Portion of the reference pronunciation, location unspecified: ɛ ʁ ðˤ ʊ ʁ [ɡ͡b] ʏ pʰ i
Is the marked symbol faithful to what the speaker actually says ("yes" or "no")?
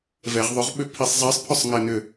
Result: no